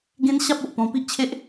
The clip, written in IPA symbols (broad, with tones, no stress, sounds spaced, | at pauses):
ɡ ẽ˦ n ɕ a˦ p̚ o˨ ʔ p ɔ̃˧ p i˦ ʔ t͡ɕʰ e˦ ʔ